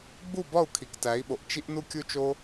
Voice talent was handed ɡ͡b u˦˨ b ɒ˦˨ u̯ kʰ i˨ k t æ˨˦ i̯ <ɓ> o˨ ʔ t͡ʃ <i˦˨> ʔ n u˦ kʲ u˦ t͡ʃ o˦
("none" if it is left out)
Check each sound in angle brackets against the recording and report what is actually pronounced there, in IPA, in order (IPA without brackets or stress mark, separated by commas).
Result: ɓ, i˦